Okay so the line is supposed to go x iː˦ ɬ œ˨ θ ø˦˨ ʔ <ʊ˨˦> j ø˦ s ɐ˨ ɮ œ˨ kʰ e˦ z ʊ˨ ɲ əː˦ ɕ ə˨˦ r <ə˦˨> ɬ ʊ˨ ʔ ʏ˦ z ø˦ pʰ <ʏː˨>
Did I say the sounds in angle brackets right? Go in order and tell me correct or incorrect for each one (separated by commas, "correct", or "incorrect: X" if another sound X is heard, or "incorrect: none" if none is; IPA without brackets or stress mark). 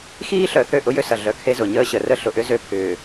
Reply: incorrect: ʊ˦, incorrect: ə˦, correct